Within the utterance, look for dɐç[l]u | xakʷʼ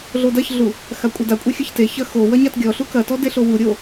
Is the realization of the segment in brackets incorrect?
yes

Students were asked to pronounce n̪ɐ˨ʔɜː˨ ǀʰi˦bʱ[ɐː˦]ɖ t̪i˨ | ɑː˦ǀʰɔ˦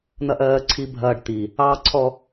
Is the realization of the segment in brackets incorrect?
no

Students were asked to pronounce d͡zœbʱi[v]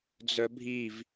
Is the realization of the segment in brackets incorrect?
no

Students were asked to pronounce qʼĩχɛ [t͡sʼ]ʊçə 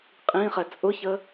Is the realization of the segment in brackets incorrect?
no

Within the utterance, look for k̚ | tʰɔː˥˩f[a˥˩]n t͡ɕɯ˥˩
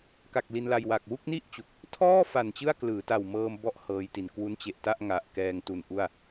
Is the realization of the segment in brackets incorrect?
yes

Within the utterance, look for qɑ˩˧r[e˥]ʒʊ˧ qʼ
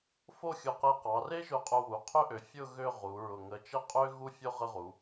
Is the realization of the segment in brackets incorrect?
no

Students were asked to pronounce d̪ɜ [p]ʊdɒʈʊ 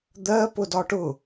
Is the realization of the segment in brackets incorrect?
no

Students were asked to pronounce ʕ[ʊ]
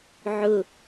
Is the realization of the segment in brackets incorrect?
no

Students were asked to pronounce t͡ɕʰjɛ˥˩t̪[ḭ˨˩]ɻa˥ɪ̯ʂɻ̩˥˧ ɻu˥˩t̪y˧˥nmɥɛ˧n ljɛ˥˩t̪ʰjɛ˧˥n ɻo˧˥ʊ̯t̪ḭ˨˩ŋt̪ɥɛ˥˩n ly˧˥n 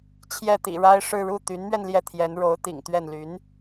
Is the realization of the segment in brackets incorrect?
no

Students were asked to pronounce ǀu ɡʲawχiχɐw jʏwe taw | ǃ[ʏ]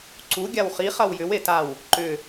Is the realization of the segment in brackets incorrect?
no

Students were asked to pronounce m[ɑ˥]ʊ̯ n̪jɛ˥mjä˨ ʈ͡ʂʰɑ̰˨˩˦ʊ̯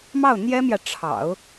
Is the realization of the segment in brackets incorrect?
yes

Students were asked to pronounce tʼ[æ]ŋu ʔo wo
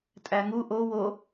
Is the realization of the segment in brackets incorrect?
no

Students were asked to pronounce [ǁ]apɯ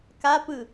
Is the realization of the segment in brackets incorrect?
yes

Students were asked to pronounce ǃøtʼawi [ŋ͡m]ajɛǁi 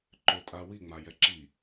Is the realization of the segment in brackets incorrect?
no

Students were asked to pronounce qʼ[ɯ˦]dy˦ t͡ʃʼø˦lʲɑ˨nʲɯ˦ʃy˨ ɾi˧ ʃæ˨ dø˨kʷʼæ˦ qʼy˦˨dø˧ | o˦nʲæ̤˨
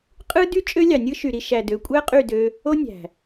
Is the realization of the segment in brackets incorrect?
no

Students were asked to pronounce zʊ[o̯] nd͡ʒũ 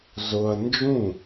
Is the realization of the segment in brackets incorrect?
yes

